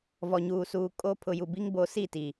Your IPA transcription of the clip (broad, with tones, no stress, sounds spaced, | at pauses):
v ɔ˨ ɲ uː˨ s uː˨ kʼ o˦ pʰ ʊ˨ j u˨ b i˦ ŋ b o˨˦ s i˦˨ t i˨